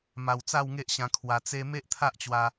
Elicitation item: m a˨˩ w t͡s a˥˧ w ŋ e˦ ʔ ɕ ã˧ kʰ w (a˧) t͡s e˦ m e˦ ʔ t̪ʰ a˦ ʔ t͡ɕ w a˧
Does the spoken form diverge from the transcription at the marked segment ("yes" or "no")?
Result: no